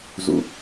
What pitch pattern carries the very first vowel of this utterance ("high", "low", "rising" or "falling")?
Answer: low